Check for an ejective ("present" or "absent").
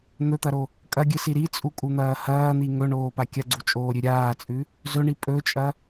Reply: present